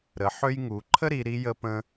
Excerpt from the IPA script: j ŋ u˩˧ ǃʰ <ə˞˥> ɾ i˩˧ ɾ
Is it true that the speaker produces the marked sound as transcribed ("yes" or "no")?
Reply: no